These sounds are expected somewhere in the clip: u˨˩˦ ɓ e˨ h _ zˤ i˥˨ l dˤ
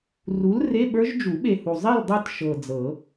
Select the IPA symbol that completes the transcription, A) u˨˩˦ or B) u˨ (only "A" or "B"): B